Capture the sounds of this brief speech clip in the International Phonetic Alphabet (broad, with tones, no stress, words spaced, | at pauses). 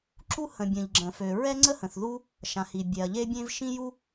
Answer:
ǁu˥ hə̃˩bʲə̃˩ʎ ɡ͡ǁə̃˩fø˩ ɹɛ˥ŋ͡ǀə˥hə̃˩θ ðu˥ | ʃã˩hi˩ bʲɛ˩ɐ̯ʎe˥bʲẽ˥v ʃĩ˥ju˥